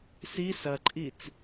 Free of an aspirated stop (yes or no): yes